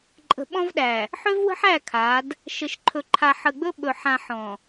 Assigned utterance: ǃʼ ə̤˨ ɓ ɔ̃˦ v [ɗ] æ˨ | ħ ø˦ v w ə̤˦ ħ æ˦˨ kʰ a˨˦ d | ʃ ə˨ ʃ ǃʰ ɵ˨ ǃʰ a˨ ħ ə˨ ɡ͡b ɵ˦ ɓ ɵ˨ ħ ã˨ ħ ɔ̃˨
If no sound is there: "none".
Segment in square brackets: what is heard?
ɗ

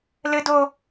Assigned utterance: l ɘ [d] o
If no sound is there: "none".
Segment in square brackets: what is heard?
d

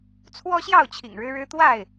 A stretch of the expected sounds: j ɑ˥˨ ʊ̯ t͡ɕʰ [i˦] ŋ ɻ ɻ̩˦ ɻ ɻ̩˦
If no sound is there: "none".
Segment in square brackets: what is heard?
ḭ˨˩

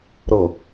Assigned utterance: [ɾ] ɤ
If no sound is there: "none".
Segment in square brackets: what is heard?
ɾ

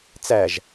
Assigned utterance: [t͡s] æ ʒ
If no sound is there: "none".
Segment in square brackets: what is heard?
t͡s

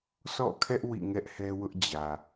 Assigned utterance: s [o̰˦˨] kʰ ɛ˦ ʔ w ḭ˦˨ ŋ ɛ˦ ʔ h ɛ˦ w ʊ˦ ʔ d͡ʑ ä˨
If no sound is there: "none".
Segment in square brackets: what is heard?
ɔ̰˦˨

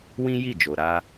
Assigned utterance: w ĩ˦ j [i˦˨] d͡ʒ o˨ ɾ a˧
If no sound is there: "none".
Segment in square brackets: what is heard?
i˦˨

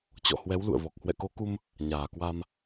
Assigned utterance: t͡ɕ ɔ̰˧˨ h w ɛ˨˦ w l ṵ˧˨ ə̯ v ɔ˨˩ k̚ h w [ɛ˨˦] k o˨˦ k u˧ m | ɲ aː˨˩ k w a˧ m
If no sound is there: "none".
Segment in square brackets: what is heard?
ɛ̰˧˨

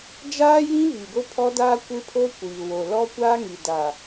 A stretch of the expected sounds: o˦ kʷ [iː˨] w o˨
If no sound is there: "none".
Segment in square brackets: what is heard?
iː˨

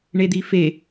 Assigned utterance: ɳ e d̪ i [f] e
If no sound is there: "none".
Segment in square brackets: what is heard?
f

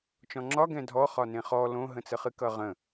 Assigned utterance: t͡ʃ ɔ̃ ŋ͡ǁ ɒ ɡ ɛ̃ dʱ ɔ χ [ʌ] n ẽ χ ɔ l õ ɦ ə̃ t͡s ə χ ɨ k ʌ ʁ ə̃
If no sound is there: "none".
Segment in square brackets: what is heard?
ɒ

